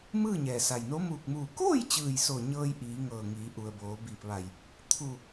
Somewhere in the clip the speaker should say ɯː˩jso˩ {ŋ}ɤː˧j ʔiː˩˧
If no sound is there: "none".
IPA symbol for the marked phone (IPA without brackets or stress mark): ɲ